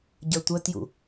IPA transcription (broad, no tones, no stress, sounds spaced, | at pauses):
ɟ ə˞ tʷ œ t j ṵ